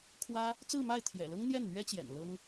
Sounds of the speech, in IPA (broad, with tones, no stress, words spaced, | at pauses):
kʰwä˥ | t͡sɹ̩˥˧ma˥˩ɪ̯ t̪ʰjɛ̰˨˩lɤ˥ŋ n̪jɛ˥˩nn̪ɥɛ˥t͡ɕjɛ̰˨˩n lɤ˥ŋ